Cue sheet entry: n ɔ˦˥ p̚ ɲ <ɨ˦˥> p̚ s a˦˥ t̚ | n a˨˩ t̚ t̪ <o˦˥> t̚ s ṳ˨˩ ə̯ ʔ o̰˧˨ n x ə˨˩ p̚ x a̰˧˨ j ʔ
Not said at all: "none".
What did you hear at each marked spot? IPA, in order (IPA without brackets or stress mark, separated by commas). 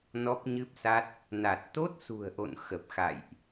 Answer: ɨ˦˥, o˦˥